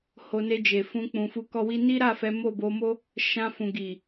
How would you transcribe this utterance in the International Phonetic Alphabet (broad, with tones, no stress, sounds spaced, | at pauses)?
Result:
h o˧ n e˧ d͡ʒ e˨ f ũ˧ k͡p ũ˨ f u˧ k ɔ˧ w i˧ n i˦ ɾ a˦˨ f ɛ˨˦ m o˦˨ b o˧ m o˦ | ʃ ã˧ f ũ˨ ɡ i˨